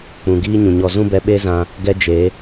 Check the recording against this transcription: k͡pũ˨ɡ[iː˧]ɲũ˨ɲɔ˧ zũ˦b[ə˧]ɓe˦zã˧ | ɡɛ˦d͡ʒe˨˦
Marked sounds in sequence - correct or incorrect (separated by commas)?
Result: incorrect, incorrect